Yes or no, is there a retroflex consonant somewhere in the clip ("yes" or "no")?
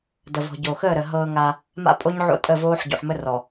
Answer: no